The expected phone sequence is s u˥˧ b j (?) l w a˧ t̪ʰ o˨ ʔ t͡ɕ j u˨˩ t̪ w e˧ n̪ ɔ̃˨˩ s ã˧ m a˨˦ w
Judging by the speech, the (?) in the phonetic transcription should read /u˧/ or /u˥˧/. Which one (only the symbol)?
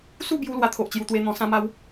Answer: u˧